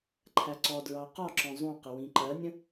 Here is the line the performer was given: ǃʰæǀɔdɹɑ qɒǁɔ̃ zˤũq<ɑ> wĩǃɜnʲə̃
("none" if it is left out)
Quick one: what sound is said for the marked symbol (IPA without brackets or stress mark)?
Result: ə